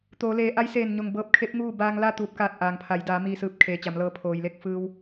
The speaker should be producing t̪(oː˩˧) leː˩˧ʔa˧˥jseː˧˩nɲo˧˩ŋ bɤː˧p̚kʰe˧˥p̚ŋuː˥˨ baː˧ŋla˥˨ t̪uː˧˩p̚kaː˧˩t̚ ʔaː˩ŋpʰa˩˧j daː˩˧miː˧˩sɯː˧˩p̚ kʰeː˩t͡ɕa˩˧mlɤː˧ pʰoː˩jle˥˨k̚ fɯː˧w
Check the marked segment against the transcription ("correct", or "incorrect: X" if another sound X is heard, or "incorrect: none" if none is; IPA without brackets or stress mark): correct